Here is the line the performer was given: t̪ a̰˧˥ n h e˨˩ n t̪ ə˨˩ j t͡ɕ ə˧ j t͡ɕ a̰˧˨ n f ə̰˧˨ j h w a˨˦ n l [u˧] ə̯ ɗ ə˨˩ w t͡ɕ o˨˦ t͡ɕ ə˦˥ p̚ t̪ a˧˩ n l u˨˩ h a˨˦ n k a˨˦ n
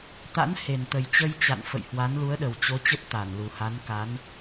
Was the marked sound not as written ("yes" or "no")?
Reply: yes